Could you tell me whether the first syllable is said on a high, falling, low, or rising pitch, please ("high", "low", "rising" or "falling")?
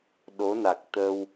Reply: rising